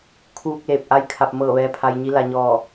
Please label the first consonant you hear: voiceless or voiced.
voiceless